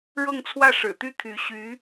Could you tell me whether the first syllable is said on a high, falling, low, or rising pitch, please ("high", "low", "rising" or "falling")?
falling